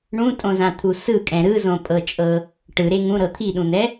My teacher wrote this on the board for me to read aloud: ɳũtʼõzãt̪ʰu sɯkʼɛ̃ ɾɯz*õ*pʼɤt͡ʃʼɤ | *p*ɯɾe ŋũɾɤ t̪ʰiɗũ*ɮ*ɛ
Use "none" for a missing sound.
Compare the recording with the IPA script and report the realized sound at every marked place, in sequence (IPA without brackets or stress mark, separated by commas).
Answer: õ, ʈ, n̪